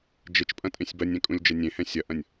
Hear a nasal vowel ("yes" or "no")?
yes